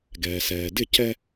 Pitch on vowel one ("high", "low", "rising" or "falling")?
low